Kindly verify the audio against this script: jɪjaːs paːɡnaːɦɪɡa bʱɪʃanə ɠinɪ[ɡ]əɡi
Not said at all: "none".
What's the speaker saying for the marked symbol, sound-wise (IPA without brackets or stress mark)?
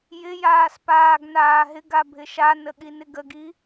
ɡ